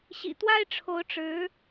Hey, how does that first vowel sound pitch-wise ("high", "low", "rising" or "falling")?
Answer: low